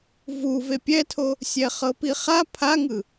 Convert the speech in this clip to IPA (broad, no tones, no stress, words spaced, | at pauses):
vu vepʲɛtʰo | sʲɛχɤpiχa pʰaŋɯ